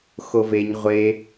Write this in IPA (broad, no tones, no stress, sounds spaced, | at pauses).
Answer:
x o v e ɲ ʁʷ e